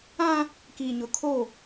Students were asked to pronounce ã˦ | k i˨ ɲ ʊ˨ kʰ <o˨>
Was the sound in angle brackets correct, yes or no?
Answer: no